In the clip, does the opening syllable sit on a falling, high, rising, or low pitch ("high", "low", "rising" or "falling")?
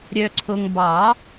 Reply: low